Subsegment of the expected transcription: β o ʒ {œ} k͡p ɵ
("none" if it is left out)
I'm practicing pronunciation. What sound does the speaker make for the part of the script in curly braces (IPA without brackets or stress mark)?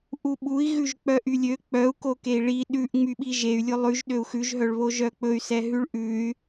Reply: œ